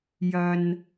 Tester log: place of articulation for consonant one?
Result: palatal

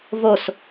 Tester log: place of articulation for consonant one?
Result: labial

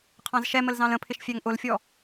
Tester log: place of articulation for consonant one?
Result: uvular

